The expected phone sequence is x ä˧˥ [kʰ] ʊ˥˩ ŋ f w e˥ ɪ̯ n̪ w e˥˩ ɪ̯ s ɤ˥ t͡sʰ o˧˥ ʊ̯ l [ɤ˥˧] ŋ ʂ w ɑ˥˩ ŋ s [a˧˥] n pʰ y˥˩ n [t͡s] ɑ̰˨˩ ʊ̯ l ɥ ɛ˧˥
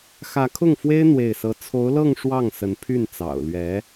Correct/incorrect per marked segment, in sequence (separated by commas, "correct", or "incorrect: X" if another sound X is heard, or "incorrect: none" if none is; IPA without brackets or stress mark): correct, correct, incorrect: ə˧˥, correct